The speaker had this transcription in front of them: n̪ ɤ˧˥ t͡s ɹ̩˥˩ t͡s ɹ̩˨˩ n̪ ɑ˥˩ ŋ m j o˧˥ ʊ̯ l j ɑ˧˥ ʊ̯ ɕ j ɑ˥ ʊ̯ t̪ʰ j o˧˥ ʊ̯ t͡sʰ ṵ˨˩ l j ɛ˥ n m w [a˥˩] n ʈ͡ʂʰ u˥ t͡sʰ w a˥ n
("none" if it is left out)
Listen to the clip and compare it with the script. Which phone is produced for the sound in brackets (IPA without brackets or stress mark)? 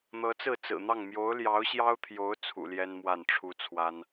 a˥˩